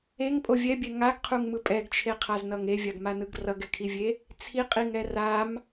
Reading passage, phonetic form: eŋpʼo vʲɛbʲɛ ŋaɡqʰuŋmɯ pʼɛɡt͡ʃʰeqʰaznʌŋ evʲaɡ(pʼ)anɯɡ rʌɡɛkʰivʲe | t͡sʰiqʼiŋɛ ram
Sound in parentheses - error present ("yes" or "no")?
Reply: yes